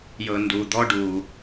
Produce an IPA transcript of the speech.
j ɤ˩ n d u˩ d̪ ɔ˧ ɖ u˩

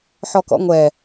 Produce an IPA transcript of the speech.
ħ ɔ k ɔ̰ ŋʷ ɛ

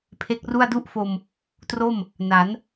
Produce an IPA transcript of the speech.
pʰ e˦˥ k̚ r u˥˩ a̯ d u˥˩ ʔ f o˧ m | t r o˥˩ m | n a˩˦ n

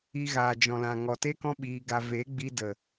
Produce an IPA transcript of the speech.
i˧ ɣ aː˨ d͡ʒ ɔ̃˨ l ã˨ ŋ ɔ˨ t e˦ k ɔ̃˦ ɓ iː˧ ɡ a˧ v e˨˦ ɡ͡b i˧ d ə˨

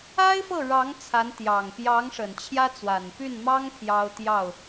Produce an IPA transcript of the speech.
a˥ ɪ̯ f ɤ˥˩ ɻ ɑ˧˥ ŋ t͡sʰ a˧˥ n t̪ j ɑ˨˩ ŋ p j ɑ˧˥ ŋ ʂ ə˨˩ n t͡ɕʰ j ä˥ t͡s w a˨˩ n p y˥˩ n m ɑ˥ ŋ pʰ j ɑ˥ ʊ̯ t̪ j ɑ˥˩ ʊ̯

